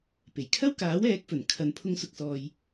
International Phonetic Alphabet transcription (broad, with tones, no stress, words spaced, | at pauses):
pe˨˩jkʰɐ˥wkaː˨˥w ɛː˨˥k̚fɵ˨˩n kʰɐ˨n pʰʊ˥ŋsʊ˧k̚sɔː˧j